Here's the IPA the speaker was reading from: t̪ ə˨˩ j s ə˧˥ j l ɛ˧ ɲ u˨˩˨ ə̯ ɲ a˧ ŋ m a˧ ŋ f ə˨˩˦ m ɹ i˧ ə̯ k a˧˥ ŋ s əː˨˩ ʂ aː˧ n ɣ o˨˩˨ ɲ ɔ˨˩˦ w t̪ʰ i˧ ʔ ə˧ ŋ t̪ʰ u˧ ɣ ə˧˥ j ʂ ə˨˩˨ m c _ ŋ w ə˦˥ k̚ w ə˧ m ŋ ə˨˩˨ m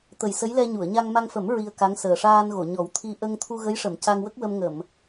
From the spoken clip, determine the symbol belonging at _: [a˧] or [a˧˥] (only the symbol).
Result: a˧